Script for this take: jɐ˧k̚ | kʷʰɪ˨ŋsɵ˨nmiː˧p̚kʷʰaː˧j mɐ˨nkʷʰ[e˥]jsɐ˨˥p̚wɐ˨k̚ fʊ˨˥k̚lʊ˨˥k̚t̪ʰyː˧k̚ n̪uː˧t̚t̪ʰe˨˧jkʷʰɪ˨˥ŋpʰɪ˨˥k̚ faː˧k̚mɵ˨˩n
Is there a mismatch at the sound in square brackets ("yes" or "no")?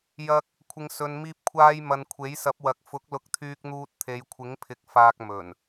yes